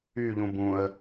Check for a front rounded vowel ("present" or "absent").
present